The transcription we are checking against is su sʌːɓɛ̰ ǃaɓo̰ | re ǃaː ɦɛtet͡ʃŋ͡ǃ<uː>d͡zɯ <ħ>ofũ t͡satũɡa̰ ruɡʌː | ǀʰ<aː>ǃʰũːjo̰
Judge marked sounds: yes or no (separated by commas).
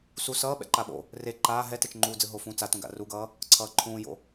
yes, no, no